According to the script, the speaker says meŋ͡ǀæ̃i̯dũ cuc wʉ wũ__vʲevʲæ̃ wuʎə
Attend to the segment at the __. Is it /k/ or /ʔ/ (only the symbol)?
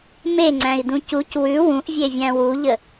ʔ